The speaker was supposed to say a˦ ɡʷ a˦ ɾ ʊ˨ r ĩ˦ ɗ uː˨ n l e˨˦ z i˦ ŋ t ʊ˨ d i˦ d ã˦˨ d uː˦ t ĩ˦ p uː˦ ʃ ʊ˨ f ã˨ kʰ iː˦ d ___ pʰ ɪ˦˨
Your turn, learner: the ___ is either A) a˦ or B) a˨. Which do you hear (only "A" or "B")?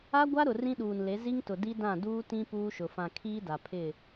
B